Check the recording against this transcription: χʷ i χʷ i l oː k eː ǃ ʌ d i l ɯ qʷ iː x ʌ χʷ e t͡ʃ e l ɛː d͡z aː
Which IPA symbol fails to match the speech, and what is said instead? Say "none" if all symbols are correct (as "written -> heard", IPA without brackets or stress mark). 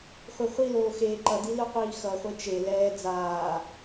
k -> x